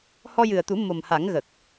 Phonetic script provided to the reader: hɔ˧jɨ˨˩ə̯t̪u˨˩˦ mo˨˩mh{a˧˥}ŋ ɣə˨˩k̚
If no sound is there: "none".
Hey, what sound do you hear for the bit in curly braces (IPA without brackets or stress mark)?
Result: a˨˩˦